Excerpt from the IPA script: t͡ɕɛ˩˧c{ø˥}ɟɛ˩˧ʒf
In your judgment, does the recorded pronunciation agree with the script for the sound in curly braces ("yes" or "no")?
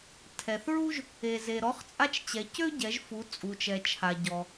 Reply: yes